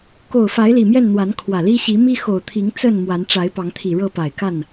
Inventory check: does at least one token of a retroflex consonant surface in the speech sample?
yes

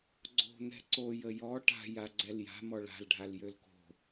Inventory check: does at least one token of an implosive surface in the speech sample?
no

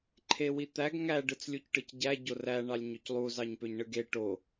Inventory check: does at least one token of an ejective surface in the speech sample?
no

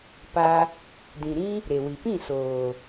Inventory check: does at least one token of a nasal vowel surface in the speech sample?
yes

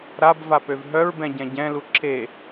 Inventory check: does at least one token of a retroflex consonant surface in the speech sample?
no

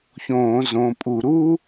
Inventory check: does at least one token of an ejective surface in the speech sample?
yes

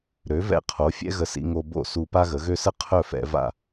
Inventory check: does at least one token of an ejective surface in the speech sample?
no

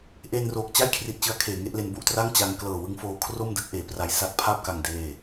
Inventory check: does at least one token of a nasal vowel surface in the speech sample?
no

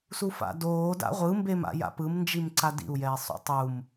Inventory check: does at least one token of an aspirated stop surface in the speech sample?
no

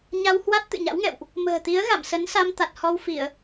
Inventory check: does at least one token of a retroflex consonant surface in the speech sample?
no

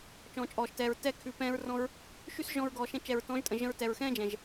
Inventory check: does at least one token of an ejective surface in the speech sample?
yes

